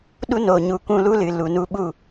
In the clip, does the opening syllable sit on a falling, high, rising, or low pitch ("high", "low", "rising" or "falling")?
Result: high